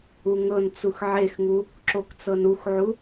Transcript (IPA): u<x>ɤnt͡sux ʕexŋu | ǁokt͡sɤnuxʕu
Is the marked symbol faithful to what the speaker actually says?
no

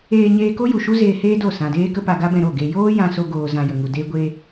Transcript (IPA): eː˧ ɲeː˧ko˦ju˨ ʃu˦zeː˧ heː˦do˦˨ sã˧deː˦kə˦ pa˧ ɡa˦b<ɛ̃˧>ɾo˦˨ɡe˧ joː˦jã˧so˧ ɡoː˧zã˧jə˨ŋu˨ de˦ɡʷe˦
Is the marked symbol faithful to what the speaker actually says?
yes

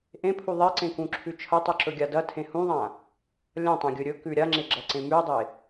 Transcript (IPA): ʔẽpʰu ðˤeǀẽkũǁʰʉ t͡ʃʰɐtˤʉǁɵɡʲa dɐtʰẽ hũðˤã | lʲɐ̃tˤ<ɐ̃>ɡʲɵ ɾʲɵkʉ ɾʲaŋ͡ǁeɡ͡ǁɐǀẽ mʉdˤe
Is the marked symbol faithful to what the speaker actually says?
yes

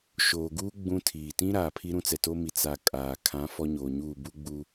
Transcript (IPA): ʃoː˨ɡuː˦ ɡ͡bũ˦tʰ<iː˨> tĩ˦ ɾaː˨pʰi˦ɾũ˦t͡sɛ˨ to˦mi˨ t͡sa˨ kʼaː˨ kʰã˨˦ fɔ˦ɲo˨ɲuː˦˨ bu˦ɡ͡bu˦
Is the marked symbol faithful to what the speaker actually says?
yes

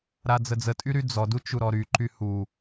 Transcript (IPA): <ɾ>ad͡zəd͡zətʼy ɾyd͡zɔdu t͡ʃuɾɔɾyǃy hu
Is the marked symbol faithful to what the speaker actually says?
yes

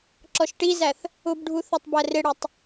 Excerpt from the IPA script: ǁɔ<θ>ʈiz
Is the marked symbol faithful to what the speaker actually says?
no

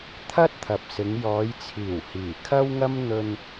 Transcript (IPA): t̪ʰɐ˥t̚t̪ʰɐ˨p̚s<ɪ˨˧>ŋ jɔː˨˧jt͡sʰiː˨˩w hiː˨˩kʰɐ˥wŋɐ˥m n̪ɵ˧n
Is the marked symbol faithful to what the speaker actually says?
yes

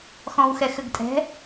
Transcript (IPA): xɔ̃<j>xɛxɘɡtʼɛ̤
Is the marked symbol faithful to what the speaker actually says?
no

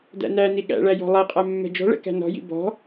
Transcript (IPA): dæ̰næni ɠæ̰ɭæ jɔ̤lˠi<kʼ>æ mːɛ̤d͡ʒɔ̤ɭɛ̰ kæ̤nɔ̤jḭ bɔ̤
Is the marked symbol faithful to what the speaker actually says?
no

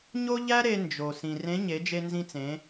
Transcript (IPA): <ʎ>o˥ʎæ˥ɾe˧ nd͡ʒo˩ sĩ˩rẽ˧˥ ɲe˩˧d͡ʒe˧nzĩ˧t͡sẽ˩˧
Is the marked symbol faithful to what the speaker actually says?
no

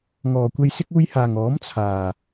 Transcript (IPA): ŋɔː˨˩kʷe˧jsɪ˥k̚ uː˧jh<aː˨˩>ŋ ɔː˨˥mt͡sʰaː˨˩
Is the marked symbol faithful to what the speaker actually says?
yes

